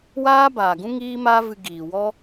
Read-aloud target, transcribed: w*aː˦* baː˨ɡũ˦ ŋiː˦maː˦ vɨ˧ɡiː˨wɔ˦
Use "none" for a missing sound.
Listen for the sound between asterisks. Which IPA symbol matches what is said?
aː˦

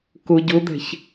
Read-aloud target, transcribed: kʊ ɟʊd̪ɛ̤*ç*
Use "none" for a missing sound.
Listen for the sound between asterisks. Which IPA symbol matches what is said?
ç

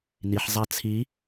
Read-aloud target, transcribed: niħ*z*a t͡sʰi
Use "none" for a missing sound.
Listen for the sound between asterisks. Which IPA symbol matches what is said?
zˤ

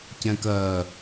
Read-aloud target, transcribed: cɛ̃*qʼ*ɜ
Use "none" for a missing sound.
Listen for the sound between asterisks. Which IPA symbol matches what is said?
k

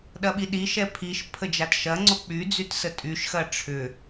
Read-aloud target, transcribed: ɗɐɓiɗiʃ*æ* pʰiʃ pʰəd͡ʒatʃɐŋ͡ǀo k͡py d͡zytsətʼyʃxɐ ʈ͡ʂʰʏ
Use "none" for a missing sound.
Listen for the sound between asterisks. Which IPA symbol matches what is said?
ɛ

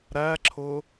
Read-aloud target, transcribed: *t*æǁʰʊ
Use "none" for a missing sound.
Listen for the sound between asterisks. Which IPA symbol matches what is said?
ɾ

